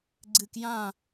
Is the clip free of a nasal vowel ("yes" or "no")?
no